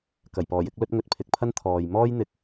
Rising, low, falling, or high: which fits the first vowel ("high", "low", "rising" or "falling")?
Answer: low